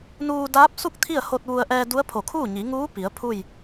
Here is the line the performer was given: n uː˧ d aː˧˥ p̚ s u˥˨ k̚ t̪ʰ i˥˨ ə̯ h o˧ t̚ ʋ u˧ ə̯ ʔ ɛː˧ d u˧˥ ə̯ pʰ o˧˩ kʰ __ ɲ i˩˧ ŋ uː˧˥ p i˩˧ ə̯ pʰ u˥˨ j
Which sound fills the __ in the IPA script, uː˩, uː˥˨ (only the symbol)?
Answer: uː˥˨